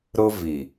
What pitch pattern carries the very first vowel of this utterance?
high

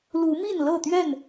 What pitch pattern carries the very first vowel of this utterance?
rising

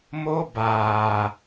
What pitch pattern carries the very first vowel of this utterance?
high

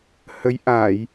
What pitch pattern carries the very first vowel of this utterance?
rising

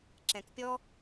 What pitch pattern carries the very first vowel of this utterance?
low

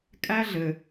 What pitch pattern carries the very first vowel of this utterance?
high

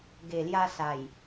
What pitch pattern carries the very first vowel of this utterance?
low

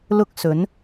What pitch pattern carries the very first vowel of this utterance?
high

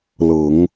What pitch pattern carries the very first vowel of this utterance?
low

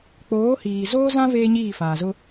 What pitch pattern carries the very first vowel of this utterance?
rising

